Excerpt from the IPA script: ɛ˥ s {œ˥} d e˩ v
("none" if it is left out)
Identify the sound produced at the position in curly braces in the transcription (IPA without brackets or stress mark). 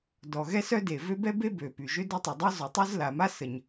œ˥